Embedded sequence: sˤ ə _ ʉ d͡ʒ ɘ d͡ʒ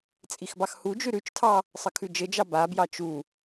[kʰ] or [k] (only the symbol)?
kʰ